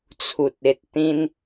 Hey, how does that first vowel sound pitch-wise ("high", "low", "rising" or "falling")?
low